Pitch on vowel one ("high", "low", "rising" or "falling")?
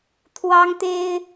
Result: high